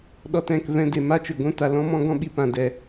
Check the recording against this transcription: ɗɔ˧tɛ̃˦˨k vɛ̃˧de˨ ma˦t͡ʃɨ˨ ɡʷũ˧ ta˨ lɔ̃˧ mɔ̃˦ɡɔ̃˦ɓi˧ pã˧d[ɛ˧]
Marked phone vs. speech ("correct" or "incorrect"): correct